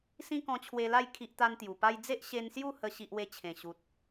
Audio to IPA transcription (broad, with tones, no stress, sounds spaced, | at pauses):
s ĩ˦ k ɔ̃˧ t͡ɕʰ w e˧ l a˥˧ j kʰ i˦ ʔ t̪ a˦ n t̪ j u˨˩ p a˧ j d͡z e˦ ʔ ɕ e˧ n s j u˥˧ h ə˧ ɕ i˦ ʔ w e˥˧ t͡ɕʰ ẽ˨˩ ɕ u˨ t̚